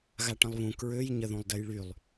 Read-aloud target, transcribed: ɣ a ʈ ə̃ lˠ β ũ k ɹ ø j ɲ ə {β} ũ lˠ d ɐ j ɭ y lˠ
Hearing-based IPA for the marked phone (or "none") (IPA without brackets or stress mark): ð